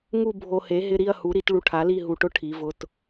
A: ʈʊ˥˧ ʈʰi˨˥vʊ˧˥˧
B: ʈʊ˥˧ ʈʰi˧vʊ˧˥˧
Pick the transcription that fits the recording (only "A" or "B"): A